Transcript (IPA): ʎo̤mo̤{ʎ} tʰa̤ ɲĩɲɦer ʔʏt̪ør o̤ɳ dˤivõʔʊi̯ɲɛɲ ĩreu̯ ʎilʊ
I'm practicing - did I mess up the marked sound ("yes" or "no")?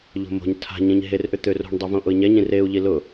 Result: yes